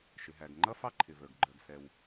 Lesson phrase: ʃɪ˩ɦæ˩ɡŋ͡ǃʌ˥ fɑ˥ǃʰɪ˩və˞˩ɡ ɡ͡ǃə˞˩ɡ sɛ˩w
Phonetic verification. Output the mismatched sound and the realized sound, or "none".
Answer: none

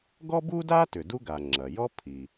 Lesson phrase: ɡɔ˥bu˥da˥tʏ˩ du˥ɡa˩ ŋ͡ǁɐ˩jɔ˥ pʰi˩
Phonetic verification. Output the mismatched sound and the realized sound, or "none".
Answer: none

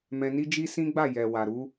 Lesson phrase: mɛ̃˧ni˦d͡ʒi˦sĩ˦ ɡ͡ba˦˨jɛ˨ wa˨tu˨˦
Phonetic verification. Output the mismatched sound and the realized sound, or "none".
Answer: t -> ɾ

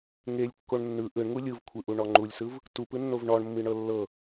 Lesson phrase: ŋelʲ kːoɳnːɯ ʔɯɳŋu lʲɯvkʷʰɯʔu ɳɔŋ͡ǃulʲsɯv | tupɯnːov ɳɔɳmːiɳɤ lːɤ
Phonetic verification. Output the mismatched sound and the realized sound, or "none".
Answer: none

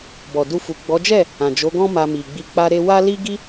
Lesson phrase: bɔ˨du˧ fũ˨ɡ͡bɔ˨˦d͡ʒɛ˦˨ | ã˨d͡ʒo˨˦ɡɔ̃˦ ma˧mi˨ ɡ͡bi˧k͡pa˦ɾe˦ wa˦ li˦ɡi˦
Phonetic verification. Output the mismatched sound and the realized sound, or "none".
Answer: ũ˨ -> u˨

